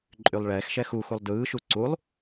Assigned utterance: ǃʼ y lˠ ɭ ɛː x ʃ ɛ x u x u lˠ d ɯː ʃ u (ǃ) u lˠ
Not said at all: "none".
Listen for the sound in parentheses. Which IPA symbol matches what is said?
ǀ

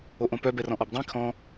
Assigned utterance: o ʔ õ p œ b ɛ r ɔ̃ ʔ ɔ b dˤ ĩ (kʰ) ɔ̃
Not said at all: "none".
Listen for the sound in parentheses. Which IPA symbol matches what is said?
kʰ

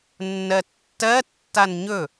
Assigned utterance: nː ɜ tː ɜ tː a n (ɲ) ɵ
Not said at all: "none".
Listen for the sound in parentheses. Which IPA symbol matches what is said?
ɲ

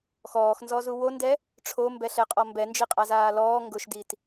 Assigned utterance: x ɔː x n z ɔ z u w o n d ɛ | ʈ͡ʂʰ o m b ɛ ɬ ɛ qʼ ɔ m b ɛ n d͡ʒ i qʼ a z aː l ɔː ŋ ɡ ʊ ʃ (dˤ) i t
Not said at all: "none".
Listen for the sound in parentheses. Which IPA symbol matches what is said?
d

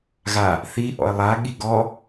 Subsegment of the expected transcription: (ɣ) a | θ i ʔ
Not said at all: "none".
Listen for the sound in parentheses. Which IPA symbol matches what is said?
ɣ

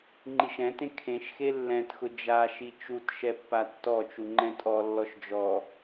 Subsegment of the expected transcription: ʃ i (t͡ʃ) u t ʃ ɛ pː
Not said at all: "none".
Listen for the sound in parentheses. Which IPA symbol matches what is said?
t͡ʃ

